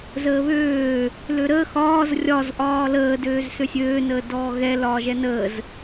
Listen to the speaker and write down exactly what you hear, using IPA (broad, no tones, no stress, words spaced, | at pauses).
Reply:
zəːβøː | løɾəː xɒːz rʲɒz ʔɒːləː døːzsøsʲøː nəːdɔːɣɛ lɒːʒɛnəːz